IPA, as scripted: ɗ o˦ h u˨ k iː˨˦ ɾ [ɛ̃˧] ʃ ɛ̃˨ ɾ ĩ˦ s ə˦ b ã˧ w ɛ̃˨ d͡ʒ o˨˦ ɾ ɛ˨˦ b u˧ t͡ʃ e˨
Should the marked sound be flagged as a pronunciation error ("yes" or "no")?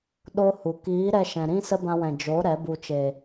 yes